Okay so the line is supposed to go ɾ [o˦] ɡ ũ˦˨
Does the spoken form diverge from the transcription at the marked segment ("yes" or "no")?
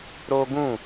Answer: no